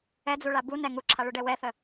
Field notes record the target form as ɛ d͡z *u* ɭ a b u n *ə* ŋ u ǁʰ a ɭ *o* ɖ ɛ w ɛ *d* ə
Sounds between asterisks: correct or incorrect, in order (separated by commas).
correct, incorrect, incorrect, incorrect